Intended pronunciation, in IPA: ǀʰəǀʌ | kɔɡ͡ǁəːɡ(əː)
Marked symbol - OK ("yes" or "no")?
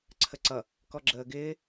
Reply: no